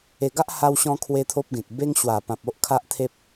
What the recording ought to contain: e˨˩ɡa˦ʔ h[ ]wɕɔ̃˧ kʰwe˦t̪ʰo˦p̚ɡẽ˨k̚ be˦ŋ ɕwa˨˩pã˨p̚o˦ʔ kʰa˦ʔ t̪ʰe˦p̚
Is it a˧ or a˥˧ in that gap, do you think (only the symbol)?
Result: a˧